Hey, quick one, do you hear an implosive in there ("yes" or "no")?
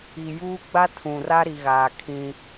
no